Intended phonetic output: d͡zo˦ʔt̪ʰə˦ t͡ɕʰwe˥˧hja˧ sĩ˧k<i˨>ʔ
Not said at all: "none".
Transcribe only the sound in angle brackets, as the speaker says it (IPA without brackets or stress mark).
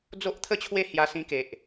e˨